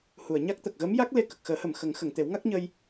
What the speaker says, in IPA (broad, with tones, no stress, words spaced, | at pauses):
hu˨˩˨ə̯ɲa˦˥k̚ t̪ə˨˩k̚ɣə˧˥mja˦˥k̚ le˧ kə˨˩k̚xəː˨˩˦hə˨˩m xə˨˩˦ŋxə˨˩˨ŋ t̪e˨˩˦w ŋa˦˥k̚ɲə˧j